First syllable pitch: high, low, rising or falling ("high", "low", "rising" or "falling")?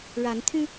rising